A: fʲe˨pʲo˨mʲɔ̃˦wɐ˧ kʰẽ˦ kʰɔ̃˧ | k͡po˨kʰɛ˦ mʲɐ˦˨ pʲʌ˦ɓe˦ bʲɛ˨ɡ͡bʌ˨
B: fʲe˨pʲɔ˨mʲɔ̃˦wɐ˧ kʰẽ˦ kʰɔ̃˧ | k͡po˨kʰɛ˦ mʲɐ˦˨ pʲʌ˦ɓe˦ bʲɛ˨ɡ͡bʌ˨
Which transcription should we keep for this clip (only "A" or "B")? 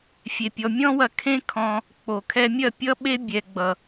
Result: B